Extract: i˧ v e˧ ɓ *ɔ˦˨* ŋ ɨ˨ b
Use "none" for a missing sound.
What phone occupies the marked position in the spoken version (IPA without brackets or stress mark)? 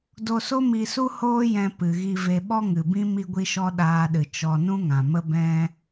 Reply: ɔ˦